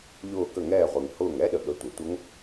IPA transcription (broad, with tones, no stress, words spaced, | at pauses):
ʎʊː˧˩kə˧˩ŋɛː˧˩ʁʷi˩ŋ hʊː˧˩ŋɛ˦˥ɗə˩ɠə˩˥ tʷə˩tʷə˦˥ŋ